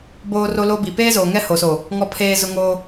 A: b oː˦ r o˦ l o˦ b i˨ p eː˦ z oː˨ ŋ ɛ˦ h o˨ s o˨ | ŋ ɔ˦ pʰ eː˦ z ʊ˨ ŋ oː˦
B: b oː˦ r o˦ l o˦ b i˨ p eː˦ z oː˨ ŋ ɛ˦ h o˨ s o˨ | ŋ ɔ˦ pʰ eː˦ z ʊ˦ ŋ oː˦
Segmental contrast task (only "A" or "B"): B